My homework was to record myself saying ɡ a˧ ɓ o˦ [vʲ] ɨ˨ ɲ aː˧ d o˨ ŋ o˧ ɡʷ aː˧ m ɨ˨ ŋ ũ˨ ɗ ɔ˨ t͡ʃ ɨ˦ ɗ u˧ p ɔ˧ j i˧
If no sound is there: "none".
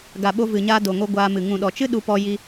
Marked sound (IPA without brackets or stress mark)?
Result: v